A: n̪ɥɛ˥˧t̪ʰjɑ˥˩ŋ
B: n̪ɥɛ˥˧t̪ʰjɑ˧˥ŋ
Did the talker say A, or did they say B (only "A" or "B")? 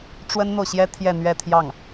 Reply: A